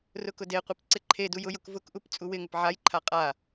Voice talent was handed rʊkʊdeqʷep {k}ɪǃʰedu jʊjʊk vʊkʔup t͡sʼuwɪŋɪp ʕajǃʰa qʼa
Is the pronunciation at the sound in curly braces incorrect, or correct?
incorrect